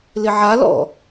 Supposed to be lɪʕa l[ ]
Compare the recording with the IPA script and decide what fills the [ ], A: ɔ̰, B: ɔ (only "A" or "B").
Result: A